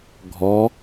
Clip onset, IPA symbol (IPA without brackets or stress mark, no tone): ɡʱ